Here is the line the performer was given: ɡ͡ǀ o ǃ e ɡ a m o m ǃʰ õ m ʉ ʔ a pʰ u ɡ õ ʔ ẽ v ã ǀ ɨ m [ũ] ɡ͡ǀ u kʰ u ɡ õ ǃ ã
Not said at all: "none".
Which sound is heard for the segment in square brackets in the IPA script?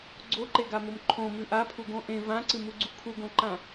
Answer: u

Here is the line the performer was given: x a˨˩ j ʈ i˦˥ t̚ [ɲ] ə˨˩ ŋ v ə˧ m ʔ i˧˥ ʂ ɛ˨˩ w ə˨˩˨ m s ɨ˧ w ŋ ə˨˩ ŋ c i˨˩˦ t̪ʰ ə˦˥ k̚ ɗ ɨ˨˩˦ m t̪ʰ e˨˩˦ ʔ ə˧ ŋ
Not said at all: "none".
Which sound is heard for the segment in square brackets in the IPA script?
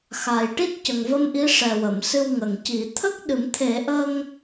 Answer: c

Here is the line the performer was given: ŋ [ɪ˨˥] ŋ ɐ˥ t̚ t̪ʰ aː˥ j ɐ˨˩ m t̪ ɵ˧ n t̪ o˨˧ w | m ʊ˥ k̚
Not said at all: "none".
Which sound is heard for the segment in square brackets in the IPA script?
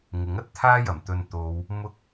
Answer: ɪ˨˥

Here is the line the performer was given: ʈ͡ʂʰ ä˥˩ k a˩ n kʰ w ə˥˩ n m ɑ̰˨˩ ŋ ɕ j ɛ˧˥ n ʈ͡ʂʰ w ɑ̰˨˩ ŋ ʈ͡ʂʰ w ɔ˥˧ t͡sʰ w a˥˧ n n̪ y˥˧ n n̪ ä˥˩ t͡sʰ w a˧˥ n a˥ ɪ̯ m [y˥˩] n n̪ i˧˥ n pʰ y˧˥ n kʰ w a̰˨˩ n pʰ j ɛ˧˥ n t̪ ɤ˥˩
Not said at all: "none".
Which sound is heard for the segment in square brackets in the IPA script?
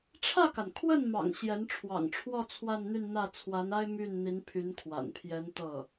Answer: y˥˩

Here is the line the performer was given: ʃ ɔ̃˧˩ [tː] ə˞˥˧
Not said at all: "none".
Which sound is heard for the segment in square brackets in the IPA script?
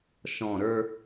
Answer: ɾ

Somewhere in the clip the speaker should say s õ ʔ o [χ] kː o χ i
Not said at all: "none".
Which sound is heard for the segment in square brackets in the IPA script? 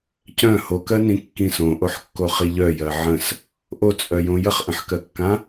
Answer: ħ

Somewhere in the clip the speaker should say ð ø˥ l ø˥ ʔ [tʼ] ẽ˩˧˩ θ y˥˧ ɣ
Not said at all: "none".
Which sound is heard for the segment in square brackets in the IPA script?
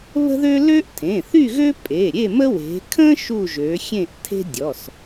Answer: tʰ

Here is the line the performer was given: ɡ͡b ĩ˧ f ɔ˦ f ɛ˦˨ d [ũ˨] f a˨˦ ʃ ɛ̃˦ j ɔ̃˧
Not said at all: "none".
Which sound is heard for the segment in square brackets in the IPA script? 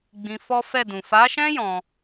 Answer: ũ˨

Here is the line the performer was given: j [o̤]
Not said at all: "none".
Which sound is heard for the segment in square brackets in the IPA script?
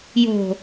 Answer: o̤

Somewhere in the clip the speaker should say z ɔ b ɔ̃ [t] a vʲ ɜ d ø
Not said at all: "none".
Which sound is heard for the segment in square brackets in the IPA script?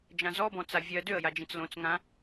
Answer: t͡s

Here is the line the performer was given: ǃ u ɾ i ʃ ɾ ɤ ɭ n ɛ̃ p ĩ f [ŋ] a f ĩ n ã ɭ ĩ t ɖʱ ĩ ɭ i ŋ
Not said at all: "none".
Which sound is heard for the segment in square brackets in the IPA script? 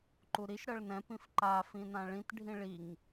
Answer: ǃ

